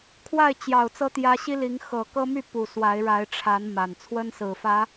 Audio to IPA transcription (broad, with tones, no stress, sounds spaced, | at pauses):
kʰ w a˥˨ ɪ̯ t͡ɕ j ɑ˨˩ ʊ̯ t͡s ɤ˦ t̪ j ä˦ ɕ i˦ l i˨˦ ŋ x ɤ˨˩ k ɤ˦ m y˥˨ p u˨˩ s w a˨˦ ɪ̯ ɻ a˨˦ ɪ̯ ʈ͡ʂʰ a˨˦ n m a˨˩ n t͡sʰ w ə˦ n s ɹ̩˨˩ f ä˨˦